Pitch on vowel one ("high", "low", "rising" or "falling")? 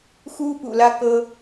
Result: high